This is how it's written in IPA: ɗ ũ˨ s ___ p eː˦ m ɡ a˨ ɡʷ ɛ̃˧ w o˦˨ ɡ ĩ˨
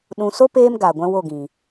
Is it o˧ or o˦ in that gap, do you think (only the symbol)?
o˦